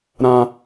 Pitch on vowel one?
high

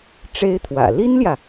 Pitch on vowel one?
high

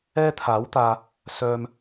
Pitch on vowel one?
high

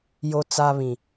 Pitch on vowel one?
high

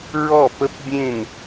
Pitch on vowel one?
falling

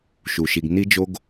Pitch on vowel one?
low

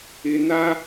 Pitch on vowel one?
low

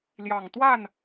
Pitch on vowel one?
low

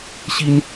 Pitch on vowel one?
high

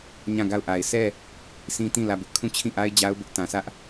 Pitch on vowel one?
falling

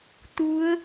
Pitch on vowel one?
rising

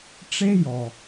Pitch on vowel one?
high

